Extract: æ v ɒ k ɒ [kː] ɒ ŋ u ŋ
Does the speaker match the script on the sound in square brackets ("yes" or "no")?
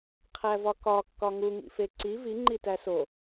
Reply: yes